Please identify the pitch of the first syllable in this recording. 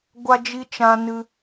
high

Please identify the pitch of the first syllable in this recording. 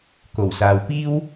low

